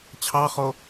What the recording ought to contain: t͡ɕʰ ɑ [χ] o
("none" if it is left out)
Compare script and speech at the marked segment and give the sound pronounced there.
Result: χ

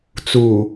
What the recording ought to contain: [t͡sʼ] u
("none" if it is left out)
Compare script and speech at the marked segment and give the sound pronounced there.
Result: t͡s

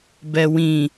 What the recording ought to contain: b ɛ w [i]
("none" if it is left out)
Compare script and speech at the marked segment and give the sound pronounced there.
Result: ĩ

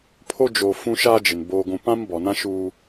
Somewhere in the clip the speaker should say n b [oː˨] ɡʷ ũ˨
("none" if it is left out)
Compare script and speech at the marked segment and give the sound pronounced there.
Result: oː˨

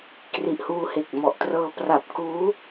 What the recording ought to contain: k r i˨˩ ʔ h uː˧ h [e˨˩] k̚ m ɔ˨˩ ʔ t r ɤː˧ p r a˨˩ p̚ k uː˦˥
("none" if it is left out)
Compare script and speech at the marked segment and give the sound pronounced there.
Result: e˨˩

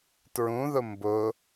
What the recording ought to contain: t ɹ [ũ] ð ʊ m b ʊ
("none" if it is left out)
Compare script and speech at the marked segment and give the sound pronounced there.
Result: ũ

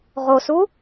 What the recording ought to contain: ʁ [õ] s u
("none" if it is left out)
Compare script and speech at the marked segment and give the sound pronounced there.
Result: o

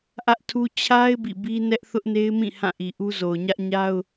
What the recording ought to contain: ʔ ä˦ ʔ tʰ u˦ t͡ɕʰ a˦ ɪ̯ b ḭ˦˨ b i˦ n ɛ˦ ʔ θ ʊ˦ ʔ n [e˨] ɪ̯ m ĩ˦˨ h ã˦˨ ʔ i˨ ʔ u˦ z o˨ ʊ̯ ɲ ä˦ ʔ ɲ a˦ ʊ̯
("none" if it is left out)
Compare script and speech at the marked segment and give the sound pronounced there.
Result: e˦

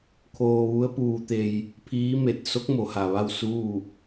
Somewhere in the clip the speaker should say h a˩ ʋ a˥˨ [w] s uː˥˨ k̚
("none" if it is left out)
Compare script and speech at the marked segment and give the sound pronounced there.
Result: w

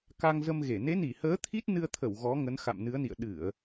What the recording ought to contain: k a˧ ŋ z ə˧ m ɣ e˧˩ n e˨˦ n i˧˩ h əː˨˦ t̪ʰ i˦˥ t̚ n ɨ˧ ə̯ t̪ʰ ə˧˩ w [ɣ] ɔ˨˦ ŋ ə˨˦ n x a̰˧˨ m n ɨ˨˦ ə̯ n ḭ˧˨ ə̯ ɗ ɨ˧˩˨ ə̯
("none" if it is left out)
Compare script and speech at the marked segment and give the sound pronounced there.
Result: ɣ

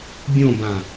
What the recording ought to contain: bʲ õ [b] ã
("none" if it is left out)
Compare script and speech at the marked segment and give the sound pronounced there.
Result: b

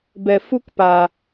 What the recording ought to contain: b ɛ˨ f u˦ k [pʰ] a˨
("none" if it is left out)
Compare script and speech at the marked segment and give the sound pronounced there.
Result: p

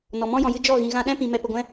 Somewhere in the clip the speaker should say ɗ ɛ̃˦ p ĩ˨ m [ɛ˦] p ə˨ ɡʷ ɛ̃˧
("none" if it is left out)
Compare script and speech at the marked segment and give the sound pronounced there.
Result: ɛ˨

